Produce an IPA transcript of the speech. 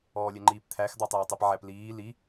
ɔːlʲɛŋ͡ǃiːpt̪ʰæx d̪ɑtˤɛːtˤɜpʕæp liː li

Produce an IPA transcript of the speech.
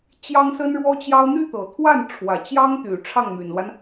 t͡ɕjɑ˥ŋsə˥nɻwɔ˥t͡ɕjɑ˥ʊ̯ n̪y˥˩t̪ɤ˨˩t̪ʰwa˥˩n ʈ͡ʂʰwä˨˩t͡ɕjɑ˥ŋt̪y˨˩ ʈ͡ʂʰɑ˥˩ŋmy˨˩nlwa˦n

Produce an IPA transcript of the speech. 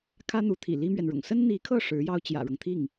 kʰä˥n̪u˧˥t̪ʰḭ˨˩ li˥mɥɛ˨nɻʊ̰˨˩ŋ sə˥nn̪i˧˥kʰɤ˥˩ ʂɻ̩˧˥jɑ˥ʊ̯ t͡ɕjä̰˨˩ɻɤ˦ŋt̪ʰi˥˩ŋ

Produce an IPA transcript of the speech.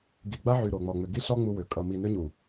ɡi˨ɡ͡ba˦ʕy˨ ɾo˨ŋ͡mɔ˨ ŋ͡mʏ˨ɡi˦ ɬɔ˦ ŋ͡mu˦wʏ˨ kʼʌ˨mi˨nʏ˦ɲu˨

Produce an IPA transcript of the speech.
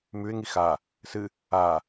mʉɪ̯ŋi xa | sɨ | a

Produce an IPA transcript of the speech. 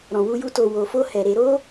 ɾɔ̃˨wu˧ju˧ to˨ wo˨fo˧ hɛ˨ ɾe˧ɾo˦

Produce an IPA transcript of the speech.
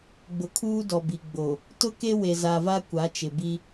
ɡ͡bʊ˨kʰuː˦dɔ˨ bi˨ɡ͡bo˨ | tʊ˦ke˦ we˨za˨va˦ kʷa˨˦t͡ʃɪ˨bi˦

